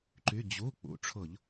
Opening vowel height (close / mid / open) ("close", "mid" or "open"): close